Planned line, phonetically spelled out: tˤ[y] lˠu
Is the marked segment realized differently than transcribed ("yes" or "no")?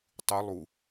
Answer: no